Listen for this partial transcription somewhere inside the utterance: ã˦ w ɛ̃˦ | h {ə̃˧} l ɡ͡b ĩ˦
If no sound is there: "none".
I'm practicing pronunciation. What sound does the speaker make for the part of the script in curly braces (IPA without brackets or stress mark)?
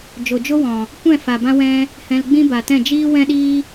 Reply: ɛ̃˧